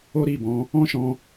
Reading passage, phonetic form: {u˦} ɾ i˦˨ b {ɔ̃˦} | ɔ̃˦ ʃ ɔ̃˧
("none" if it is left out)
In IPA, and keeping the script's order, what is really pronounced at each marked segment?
o˦, ɔ̃˨˦

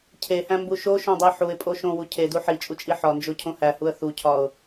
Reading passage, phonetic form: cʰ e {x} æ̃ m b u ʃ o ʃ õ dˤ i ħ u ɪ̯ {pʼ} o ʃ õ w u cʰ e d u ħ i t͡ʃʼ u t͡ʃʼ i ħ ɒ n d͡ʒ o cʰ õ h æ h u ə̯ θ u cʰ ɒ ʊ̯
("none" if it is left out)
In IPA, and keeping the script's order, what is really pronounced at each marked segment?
h, pʼ

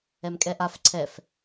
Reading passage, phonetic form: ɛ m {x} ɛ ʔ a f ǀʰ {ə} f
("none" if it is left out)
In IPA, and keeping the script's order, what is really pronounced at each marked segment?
kʼ, ɛ

